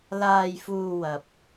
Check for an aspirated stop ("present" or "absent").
absent